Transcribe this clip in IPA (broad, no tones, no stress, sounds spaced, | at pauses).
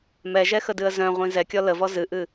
m ɛ ʒ ɛ x ə d ɨ ə̯ z œ̃ ʁʷ ĩ z ɛ kʲ ɔ l ə v ɔ z ɨ ʔ ɨ